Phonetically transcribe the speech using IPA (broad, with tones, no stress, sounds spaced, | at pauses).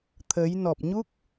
t̪ʰ ə˨˦ j n ɔ˨˩ p̚ ɲ u˦˥ k̚